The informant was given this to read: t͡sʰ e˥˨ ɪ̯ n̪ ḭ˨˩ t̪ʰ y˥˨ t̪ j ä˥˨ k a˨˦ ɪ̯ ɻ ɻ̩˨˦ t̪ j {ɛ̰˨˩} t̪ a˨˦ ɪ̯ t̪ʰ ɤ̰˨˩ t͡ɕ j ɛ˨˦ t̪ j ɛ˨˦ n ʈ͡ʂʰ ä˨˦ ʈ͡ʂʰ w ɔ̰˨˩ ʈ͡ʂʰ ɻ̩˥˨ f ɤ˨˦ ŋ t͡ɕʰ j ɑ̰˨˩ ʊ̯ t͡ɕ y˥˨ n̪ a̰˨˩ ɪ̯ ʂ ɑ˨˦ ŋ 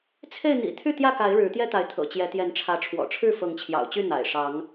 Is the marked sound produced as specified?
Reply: no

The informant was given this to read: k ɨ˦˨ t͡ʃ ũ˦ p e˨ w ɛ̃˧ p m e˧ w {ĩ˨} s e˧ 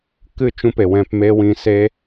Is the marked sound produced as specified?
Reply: yes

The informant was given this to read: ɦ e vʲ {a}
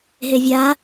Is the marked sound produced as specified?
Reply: yes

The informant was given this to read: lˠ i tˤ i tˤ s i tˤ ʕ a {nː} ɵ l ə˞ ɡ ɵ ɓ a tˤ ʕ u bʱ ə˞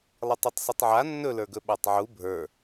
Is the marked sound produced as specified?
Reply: yes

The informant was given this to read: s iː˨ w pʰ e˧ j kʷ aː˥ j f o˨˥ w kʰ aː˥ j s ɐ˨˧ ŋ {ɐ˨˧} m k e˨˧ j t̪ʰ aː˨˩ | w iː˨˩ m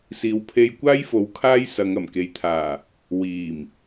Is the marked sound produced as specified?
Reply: no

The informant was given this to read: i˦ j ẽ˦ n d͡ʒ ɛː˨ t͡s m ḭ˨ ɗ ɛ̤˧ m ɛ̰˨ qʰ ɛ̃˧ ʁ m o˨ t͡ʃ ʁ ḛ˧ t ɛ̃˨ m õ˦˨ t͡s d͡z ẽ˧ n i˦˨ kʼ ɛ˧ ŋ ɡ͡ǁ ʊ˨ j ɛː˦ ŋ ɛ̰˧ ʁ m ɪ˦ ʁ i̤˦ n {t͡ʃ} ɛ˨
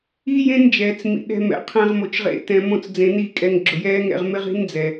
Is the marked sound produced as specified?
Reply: no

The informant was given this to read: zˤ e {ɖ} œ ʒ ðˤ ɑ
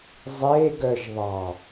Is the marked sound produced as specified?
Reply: no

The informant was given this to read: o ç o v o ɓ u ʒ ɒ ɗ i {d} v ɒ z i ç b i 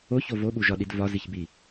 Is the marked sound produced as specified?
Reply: yes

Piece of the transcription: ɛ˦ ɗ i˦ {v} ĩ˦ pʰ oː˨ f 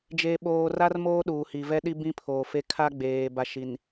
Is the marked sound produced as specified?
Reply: no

